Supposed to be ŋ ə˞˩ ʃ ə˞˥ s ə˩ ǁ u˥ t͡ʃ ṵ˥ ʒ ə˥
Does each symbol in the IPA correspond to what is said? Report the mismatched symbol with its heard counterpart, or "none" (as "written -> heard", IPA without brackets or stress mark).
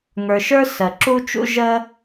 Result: none